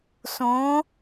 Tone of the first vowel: rising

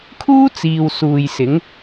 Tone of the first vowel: high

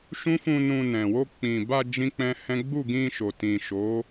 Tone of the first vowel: high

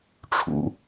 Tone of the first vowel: low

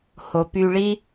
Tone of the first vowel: low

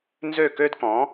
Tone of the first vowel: falling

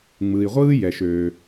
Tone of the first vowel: low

